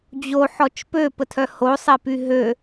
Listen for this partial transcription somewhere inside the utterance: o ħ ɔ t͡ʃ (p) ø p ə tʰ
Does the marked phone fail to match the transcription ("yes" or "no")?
no